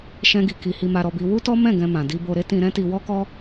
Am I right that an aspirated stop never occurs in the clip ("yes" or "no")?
yes